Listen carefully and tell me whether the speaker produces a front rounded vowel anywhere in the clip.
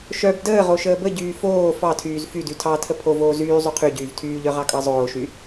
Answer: yes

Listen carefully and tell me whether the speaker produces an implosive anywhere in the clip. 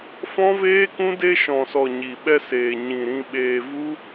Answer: yes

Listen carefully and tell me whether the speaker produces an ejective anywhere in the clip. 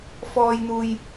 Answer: no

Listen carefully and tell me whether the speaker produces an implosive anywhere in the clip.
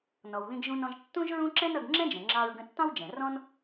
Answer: no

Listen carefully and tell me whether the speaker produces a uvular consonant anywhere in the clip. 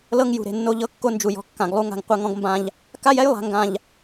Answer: yes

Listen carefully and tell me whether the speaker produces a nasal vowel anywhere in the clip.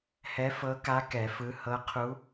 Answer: no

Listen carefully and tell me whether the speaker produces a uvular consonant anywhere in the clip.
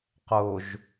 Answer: yes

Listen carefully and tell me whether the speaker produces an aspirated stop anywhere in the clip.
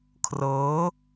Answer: yes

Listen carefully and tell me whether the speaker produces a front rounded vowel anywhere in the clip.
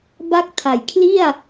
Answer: no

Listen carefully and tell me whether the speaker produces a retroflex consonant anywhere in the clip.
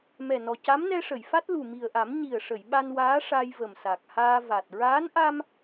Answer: yes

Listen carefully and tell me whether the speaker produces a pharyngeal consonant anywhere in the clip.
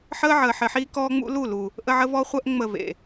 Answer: yes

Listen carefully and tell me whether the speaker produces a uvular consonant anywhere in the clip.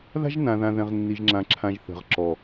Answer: yes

